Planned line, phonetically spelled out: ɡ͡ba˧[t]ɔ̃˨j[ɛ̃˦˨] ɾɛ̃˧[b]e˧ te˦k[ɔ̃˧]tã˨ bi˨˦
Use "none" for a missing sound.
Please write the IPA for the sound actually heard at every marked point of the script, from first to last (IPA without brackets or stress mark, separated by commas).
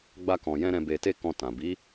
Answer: k, ɛ̃˧, b, ɔ̃˧